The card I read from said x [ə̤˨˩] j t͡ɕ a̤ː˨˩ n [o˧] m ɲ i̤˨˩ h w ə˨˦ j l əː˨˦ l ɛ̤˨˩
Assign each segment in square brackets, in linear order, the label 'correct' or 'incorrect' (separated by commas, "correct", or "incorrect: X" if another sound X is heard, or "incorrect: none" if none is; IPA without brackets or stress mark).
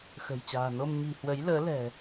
correct, correct